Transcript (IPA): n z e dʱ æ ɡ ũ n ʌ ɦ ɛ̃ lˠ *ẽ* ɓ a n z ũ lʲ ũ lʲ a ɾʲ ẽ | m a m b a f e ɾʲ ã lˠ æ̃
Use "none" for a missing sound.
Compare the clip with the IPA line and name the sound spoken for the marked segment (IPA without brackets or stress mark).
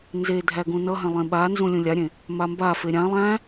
ẽ